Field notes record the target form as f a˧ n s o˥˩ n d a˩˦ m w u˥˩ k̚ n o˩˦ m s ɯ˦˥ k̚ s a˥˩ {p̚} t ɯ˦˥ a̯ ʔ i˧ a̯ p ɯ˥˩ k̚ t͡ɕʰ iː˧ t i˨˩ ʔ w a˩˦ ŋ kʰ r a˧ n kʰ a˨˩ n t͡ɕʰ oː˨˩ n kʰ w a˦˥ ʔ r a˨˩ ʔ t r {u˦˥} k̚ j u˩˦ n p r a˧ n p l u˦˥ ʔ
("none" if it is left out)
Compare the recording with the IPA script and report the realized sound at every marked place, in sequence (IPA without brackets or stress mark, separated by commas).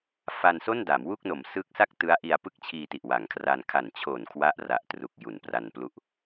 k̚, u˨˩